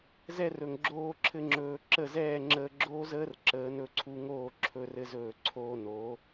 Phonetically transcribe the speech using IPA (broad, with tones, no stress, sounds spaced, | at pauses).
z ɛ˧ r ɵ˨ ŋ ɡ͡ǁ oː˧ ǁʰ ɘ˧ ŋ͡ǁ ɵː˨ ǁ ə˦˨ z ɛː˦˨ ŋ͡ǁ əː˧ ɡ͡ǁ oː˦ z əː˦ r ǁ əː˨˦ n ɵ˧ ǀʰ u˧ ŋ oː˦˨ ǁʰ ɵ˧ r ɘ˧ z ɵː˨ ǀʰ oː˧ n o˨˦